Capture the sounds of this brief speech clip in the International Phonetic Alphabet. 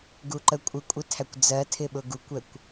ɡ u ǃ ə kʷʼ ɪ kʷʼ ɪ tʰ æ kʷ d͡z ɜ tʰ ɪ ɓ ʊ ɡ u kʷ ɛ kʷ

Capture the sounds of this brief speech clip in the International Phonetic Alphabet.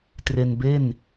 t r e˧ n b e˥˩ n

